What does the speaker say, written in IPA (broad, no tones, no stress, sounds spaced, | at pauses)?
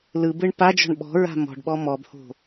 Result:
l ɯ b ɯ ɳ p a d͡ʒ ɔ̤ ɳ ɓ ɔ̤ ɹ a̤ m ɔ̤ ɖ ɓ ɔ m ɔ b h o̤